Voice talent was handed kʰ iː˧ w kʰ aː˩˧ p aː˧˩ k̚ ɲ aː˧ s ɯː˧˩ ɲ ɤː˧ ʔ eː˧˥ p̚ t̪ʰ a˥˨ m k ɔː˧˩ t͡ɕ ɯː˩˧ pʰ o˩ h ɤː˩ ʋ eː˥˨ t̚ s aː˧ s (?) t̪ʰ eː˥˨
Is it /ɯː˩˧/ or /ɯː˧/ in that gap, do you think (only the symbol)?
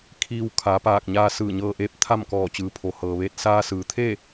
ɯː˩˧